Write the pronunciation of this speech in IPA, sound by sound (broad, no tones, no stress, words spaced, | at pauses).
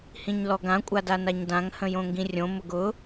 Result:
hĩɲlɔɡã kʷʼadanaɲdãŋ hə̃jõŋɡĩrʲõ mʊɡʊ